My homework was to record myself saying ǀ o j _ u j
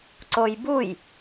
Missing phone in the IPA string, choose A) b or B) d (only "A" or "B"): A